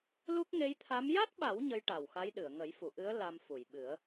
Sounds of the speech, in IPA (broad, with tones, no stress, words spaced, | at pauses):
lu˦˥k̚ ŋe˧˥jt̪ʰa˧˥m ja˦˥t̚ɓa˨˩˦w ɲə˧˥jʈa˨˩wxa˧˥jɗɨ˨˩˨ə̯ ŋə˨˩˦jfu˨˩˨ʔɨ˧˥ə̯ la˧mfu˨˩˨jɓɨ˨˩˦ə̯